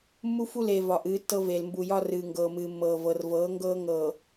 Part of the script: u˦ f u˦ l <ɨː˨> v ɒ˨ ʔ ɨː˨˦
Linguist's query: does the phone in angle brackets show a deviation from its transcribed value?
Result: yes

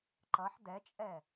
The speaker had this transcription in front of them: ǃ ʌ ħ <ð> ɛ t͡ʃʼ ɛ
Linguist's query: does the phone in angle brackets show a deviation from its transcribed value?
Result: yes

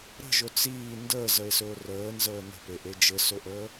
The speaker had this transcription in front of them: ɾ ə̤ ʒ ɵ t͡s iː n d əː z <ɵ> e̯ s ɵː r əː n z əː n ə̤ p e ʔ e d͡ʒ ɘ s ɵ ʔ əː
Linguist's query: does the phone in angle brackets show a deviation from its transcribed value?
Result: yes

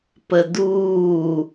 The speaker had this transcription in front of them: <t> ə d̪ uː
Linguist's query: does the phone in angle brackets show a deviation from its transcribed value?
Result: yes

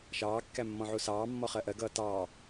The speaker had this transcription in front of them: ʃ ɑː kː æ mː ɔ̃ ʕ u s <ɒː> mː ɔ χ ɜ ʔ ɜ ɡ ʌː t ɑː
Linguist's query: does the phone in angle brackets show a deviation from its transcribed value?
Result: yes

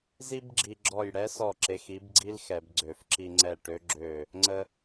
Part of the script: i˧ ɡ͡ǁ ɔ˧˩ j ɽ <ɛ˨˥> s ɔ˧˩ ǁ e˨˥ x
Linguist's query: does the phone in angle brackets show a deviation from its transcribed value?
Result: no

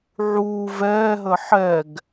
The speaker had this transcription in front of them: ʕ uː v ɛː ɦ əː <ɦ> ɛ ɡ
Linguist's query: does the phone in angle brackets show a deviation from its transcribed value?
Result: yes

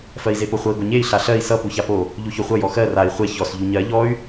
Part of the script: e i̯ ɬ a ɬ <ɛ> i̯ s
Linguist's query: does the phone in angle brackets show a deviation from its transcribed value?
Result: yes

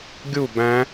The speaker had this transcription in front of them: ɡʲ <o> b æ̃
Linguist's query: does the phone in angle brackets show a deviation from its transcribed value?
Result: yes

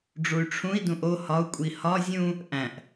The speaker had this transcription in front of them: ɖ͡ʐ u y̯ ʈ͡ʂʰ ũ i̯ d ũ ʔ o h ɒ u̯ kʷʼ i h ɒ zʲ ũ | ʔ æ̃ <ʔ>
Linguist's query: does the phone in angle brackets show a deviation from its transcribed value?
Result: no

